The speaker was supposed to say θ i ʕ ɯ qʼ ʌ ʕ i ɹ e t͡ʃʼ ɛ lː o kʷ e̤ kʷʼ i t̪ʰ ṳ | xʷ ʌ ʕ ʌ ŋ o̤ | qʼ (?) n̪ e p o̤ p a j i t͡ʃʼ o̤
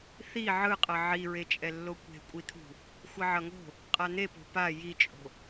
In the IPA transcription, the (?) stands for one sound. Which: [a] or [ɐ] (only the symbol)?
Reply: a